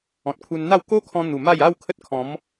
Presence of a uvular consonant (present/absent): absent